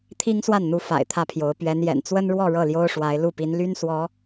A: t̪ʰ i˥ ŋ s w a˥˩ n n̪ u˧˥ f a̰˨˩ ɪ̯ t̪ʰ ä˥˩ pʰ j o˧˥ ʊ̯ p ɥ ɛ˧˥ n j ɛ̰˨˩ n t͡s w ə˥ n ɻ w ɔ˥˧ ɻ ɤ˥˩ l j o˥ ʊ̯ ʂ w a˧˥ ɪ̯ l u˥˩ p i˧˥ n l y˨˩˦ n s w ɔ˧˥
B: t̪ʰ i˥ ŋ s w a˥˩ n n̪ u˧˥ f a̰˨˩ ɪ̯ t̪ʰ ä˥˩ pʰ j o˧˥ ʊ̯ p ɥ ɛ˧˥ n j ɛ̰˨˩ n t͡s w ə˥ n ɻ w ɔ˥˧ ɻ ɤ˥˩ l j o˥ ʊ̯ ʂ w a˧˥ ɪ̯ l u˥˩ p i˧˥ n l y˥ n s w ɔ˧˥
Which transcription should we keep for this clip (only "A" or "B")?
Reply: B